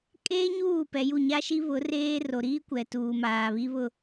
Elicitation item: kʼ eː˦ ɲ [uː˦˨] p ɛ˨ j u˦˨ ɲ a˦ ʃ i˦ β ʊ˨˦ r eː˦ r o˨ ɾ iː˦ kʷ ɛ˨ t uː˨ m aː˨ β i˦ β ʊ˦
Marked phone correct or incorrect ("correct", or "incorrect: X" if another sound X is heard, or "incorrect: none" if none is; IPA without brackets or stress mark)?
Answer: correct